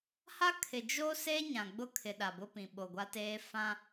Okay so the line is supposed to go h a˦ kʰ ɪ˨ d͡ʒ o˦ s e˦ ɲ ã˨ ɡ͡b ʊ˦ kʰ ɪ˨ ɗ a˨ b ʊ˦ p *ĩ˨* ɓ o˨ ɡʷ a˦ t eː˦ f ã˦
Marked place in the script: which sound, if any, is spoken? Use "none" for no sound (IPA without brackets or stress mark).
ĩ˨